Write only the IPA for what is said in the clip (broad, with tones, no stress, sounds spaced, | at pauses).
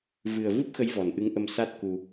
v ɨ˨˩ ə̯ v u˦˥ p̚ x ə˨˦ j v ɔ˨˩ n ʔ ɨ˨˦ ŋ ʔ ə˧ m s a˦˥ t̚ k u˧